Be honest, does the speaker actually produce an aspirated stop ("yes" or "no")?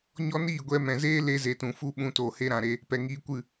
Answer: no